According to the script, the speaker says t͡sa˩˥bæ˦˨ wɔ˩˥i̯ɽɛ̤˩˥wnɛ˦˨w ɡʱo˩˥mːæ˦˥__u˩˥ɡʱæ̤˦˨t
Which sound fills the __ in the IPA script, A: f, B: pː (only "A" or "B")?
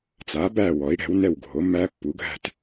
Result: B